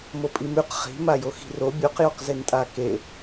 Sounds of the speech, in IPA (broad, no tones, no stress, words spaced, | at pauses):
mopʼimʉq χi̤ majoxi̤ro bʲoqjoqzentʼa ke